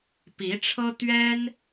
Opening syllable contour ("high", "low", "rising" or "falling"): rising